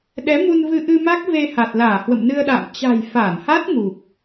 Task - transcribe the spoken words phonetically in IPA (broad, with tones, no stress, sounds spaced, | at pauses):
ɗ ɛ˨˦ m u˧ n v ɨ˧ ʔ ɨ˧ m a˦˥ k̚ v e˧ h a˨˩ t̚ l aː˧˩ h w ə̰˧˨ m n ɨ˧ ə̯ ɗ a̰ː˧˨ m t͡ɕ a̤˨˩ j f aː˧˩ n h a˦˥ t̚ ŋ u˨˩ k̚